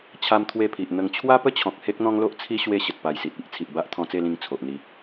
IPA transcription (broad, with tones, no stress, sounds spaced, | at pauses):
t͡ɕʰ a˦ m t̪ʰ w e˥˧ pʰ i˨ ʔ n̪ ə˥˧ ŋ t͡ɕʰ w a˦ p ə˥˧ t͡ɕʰ ɔ̃˨ k̚ h e˦ k̚ n̪ ɔ̃˦ ŋ l o˦ ʔ t͡sʰ i˦ ɕ w e˦ ɕ ə˨ t̚ p a˨˩ j s i˨ t̚ i˦ ʔ t͡sʰ i˨ ʔ b a˦ ʔ t̪ʰ ɔ̃˧ t͡s e˥˧ l ĩ˧ ŋ t͡sʰ o˨ ʔ n̪ i˧